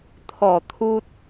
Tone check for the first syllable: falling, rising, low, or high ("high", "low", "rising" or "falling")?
low